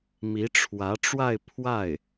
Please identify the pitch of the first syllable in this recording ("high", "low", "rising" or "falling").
rising